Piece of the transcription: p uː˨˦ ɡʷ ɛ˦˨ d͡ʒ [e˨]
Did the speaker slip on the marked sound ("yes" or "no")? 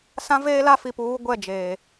yes